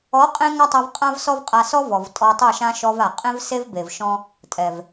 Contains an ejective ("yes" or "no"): yes